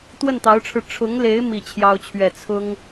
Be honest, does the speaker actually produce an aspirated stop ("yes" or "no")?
yes